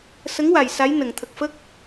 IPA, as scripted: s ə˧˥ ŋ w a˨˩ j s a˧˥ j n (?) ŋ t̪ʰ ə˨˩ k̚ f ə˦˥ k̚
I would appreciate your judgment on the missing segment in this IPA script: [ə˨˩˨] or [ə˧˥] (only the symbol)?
ə˨˩˨